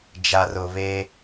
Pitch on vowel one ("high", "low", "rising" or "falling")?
low